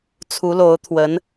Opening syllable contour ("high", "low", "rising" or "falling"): rising